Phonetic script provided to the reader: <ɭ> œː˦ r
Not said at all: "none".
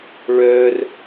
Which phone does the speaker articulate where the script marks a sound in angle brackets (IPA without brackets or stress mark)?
ɭ